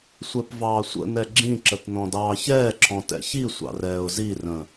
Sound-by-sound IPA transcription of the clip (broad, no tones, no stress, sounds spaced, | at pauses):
sʷ ɛ p v ɑː sʷ ə̰ n ɛ ɡ͡ǁ ĩ ǁ ə t n ɔ̃ d ɑː ç ɛː ǁʰ ɔ̃ t ɛ̰ ç i sʷ ɑ̰ r ɛː ʊ̯ z i r ə̃